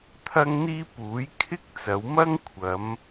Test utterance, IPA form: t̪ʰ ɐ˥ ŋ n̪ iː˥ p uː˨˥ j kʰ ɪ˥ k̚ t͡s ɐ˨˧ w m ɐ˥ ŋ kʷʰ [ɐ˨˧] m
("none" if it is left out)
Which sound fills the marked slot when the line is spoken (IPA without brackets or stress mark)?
ɐ˨˧